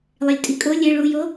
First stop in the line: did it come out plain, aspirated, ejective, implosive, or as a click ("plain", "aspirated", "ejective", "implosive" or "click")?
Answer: ejective